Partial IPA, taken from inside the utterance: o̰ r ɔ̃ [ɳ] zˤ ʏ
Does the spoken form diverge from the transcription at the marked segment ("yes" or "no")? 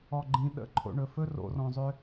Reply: yes